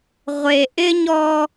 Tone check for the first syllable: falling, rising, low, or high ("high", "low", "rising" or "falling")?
low